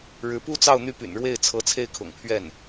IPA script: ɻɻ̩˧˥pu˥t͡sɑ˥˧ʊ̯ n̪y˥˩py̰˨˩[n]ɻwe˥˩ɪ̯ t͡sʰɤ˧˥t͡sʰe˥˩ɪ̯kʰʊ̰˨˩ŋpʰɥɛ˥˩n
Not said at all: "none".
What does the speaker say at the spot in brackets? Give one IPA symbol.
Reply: n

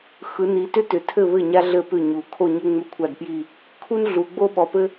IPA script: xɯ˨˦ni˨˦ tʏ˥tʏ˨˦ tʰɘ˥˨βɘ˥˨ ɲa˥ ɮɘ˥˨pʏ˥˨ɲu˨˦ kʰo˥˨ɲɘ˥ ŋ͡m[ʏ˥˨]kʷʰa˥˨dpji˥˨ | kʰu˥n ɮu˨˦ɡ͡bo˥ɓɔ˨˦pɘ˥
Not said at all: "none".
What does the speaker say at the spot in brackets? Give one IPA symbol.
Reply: ʏ˥˨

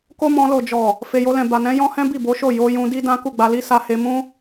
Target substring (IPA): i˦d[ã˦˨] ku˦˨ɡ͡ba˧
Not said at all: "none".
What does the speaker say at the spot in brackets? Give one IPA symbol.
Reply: ã˦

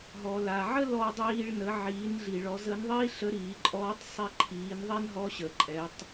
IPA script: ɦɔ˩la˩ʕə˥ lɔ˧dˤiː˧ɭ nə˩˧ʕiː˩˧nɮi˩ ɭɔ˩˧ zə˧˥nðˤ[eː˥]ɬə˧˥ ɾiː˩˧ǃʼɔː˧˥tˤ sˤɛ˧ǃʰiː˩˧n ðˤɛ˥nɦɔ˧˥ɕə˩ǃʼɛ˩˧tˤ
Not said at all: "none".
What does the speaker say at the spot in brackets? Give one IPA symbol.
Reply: iː˥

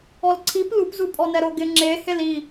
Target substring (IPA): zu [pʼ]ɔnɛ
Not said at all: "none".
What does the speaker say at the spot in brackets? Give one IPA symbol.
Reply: pʼ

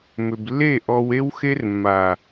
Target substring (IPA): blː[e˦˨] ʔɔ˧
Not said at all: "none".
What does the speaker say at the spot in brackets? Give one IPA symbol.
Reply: e˦˨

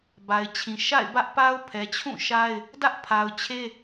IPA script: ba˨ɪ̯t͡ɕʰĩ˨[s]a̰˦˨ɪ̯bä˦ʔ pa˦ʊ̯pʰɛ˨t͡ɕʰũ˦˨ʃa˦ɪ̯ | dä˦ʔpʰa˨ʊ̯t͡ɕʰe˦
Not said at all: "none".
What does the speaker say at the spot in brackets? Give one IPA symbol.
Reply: ʃ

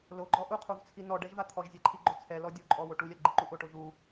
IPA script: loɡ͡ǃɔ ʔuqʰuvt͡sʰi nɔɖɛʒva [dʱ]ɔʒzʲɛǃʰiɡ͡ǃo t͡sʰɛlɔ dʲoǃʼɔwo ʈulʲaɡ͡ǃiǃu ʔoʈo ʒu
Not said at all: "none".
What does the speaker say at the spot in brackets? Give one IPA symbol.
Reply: t̪ʰ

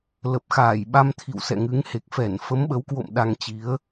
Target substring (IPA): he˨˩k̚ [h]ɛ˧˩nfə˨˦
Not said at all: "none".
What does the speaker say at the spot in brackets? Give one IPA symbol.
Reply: f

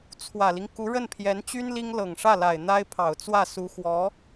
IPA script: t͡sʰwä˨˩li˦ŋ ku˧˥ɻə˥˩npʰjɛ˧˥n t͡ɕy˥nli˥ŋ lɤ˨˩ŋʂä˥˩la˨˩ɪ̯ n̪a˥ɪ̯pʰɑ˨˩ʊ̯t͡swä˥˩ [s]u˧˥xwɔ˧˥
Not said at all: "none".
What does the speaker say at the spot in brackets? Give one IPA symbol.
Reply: s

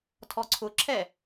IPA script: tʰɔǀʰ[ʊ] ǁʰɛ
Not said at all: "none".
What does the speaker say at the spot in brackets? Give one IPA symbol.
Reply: ʊ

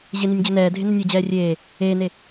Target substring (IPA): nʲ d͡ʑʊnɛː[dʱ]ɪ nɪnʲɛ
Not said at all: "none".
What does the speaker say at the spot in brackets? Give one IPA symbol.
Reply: dʱ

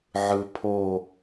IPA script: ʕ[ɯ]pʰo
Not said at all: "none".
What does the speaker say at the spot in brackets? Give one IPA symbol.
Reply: ɯ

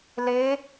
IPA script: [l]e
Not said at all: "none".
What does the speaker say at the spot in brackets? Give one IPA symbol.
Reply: l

